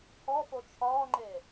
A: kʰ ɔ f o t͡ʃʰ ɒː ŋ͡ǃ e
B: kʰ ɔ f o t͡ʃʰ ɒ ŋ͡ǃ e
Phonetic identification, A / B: A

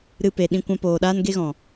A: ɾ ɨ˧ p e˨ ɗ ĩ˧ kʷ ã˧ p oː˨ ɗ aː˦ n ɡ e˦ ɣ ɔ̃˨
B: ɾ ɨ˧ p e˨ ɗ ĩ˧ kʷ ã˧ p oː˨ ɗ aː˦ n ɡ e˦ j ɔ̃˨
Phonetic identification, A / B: A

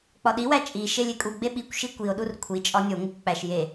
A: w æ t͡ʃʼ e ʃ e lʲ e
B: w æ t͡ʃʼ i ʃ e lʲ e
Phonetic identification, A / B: B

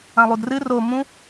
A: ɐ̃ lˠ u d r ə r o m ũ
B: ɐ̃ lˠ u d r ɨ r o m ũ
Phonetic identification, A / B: B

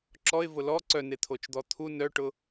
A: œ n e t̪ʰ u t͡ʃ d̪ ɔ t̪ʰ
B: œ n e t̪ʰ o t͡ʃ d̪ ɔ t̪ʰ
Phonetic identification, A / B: B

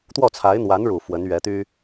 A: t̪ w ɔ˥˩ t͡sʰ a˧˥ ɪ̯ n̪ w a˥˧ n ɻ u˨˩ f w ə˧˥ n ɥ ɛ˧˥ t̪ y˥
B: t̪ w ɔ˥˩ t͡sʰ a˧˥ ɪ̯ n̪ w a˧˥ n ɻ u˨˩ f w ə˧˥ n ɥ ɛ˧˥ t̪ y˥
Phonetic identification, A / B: B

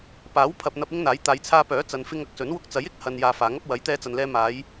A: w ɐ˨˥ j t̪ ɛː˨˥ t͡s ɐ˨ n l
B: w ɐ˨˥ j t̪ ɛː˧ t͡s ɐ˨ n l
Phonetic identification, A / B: B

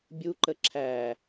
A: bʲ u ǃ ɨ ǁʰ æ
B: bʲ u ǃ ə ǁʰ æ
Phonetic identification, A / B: B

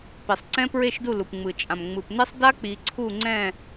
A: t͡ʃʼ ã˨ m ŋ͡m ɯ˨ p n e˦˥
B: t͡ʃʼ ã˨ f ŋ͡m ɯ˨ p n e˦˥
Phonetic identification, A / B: A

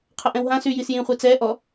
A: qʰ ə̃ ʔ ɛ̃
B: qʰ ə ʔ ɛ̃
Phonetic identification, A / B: B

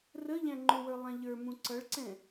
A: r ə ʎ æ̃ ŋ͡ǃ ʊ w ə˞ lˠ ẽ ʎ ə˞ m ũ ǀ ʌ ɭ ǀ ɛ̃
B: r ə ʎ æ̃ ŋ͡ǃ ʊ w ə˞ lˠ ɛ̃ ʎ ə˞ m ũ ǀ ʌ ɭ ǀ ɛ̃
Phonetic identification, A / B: B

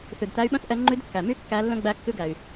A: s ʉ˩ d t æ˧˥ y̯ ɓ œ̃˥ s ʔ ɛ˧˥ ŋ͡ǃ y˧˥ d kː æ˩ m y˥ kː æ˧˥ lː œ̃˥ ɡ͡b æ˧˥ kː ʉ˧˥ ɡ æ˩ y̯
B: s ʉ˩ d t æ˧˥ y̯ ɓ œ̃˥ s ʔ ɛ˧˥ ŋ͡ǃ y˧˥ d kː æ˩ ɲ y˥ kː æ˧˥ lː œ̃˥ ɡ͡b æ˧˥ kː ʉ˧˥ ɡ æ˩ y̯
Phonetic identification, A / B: A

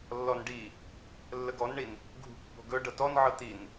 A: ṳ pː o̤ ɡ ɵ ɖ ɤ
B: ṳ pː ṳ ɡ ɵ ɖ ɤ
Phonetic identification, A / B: A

